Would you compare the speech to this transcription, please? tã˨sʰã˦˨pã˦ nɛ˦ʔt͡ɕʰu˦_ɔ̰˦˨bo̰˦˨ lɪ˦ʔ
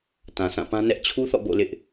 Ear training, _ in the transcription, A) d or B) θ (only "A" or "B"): B